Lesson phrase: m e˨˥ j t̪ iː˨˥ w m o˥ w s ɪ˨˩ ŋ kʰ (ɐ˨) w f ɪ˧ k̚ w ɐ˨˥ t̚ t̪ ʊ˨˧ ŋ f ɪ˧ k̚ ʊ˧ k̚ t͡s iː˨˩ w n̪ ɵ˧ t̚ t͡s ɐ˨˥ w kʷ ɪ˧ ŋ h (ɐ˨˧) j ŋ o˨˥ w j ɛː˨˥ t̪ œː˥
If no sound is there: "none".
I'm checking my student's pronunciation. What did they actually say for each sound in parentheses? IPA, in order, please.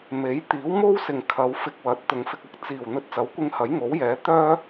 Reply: ɐ˨˧, ɐ˨˥

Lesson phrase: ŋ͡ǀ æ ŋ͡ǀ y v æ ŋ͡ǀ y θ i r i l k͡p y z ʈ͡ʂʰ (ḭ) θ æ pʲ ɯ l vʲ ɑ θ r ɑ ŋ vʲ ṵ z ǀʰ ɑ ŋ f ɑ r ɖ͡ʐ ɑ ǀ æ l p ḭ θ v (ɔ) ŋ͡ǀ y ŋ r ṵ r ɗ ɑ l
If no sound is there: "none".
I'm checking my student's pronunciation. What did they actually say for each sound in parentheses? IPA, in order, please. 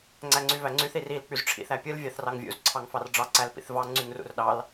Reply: ḭ, ɑ

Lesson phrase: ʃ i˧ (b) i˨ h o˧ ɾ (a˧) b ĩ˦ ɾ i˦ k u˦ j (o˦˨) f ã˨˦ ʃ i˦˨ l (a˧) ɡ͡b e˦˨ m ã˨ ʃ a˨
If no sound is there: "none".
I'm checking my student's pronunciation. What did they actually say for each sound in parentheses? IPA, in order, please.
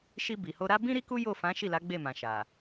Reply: b, a˦, o˦˨, a˨˦

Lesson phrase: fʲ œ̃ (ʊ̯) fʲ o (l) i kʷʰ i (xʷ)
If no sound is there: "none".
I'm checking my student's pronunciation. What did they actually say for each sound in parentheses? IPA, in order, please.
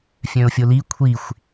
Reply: ʊ̯, l, xʷ

